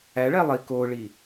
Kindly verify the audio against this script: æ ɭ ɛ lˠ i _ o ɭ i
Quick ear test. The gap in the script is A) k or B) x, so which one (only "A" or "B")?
A